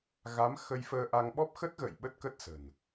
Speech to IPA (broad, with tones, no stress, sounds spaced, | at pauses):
ɣ a˨˦ m x ə˧ j f əː˧ ʔ a˧ ŋ ɓ ɔ˦˥ p̚ x ə˦˥ t̚ ɣ ə̰˧˨ j ɓ ə˦˥ t̚ k ə˦˥ t̚ s ə̤˨˩ n